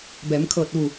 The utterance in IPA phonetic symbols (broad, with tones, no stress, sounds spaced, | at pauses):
b ɛː˩˧ m kʰ ɤː˧˩ t̚ ʋ u˧˩